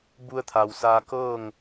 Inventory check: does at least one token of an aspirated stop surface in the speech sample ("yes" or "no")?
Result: yes